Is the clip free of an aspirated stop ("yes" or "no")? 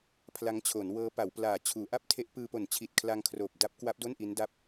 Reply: no